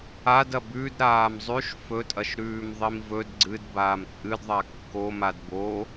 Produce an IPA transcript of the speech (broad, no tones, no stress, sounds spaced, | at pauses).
a d ɐ b ʉ d ɾ aː m zˤ ʉ ʃ f ɵ tʼ ɐ ʃ ɾ ʉː m ðˤ i m v ɵ d ɡ͡ǀ ɨ d b aː m t͡sʼ ɨ d ðˤ a kː o m a d b o